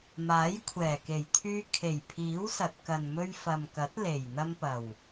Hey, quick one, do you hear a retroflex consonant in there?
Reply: no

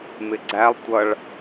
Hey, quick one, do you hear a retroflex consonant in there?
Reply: yes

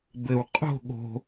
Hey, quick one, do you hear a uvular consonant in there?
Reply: yes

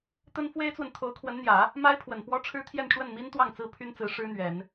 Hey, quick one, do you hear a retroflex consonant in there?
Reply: yes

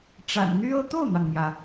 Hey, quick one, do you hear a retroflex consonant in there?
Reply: yes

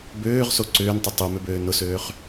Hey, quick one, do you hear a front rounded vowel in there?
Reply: yes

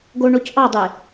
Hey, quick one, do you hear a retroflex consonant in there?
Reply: yes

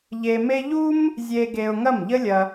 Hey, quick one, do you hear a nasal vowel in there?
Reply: no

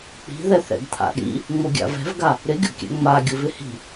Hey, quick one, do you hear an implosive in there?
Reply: yes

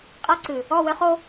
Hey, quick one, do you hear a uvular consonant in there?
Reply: yes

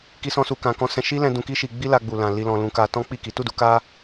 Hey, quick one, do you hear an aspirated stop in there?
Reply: no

